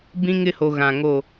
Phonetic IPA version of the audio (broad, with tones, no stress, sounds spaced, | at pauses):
b ĩ˦ ŋ ɪ˦ h o˨ ɣ ã˨ ŋ o˦˨